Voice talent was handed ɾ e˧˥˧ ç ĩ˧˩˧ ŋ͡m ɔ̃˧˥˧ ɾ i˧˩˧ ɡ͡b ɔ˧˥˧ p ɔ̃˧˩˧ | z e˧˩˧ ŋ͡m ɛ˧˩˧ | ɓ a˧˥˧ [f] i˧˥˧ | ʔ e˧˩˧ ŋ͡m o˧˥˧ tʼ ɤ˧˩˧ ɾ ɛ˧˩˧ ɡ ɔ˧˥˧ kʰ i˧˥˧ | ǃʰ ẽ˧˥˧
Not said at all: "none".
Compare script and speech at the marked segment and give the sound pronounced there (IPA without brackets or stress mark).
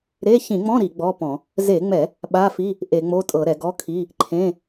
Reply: f